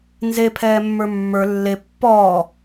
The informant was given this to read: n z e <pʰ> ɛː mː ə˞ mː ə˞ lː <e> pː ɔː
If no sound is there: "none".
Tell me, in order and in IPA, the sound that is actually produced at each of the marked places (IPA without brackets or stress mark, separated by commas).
pʰ, e